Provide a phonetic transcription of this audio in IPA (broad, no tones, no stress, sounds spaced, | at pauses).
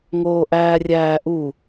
ŋ oː ʔ æː rʲ æː ʔ u